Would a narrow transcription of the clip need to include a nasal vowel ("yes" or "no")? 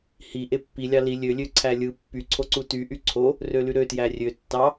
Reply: no